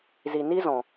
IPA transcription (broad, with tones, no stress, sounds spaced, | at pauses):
z i˨ n i˦ z ɔ̃˨